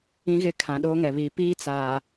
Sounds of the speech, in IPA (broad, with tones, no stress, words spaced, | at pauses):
ĩ˦ɣɪ˦˨kʰã˨ ɗoː˦ŋɛ˨βiː˨ piː˦t͡saː˨